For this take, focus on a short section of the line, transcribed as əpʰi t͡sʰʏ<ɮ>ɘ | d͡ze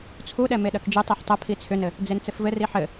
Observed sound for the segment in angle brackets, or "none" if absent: n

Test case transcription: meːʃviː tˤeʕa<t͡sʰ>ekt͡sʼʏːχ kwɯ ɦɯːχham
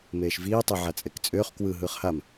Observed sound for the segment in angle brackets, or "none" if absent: t͡sʼ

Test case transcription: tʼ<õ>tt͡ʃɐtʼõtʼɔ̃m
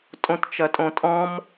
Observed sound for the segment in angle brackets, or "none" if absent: õ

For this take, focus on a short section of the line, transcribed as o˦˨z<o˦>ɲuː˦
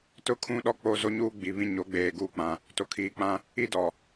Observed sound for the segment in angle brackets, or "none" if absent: o˦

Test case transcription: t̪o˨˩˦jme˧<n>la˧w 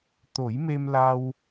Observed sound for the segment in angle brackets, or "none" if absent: m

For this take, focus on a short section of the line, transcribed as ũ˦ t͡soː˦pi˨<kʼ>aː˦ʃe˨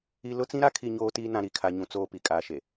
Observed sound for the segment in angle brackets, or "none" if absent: kʼ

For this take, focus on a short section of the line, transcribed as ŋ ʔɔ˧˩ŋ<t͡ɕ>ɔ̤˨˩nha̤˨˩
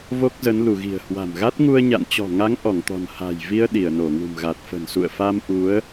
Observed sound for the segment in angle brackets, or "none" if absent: t̪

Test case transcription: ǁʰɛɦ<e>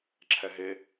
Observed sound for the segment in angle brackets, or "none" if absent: e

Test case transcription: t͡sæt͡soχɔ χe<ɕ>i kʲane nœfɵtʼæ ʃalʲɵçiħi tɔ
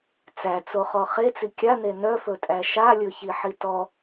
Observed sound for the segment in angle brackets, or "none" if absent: t͡s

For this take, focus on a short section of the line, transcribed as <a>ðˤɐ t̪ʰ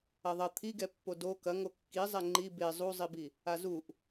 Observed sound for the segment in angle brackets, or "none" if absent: ɐ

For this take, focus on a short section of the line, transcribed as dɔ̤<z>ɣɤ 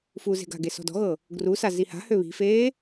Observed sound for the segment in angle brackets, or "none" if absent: none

